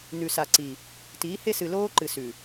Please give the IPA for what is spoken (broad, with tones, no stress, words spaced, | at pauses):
nʉ˨sa˨ ǀi˨ | tiː˨˦he˦sɨ˨ loː˦ǃɨ˨sʉ˨